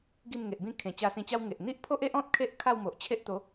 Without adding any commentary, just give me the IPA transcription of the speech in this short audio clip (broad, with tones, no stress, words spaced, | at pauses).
ɡi˥˧mŋe˨ʔbĩ˥˧ kʰẽ˨˩t͡ɕa˧sĩ˧t͡ɕa˦w ŋe˨ʔ n̪i˦ʔpʰo˦ʔe˦ʔɔ̃˦t̚ kʰe˦ʔ kʰa˥˧wmo˨ʔt͡ɕʰe˦ʔt̪o˨˦